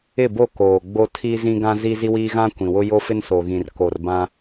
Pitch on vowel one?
falling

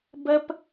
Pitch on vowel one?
high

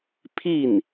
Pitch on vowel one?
falling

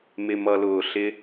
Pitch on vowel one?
low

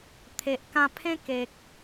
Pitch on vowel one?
low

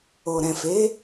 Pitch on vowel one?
low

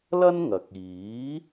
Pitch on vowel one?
high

